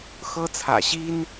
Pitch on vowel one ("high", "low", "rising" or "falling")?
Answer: high